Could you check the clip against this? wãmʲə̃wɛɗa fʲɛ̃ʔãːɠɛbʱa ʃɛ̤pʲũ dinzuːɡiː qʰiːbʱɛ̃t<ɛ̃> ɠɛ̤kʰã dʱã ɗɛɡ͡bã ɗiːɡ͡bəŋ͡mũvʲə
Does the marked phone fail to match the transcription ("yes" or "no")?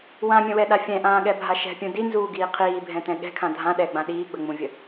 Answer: no